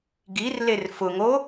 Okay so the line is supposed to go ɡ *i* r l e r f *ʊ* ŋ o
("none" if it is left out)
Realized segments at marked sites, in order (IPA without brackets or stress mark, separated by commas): i, ʊ